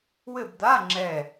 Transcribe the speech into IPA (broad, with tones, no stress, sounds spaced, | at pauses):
w ɘ˦˨ b d̪ a˧˥˧ ŋ͡ǁ ɛ˦˨